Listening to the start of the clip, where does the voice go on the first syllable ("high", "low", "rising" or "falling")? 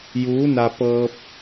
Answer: rising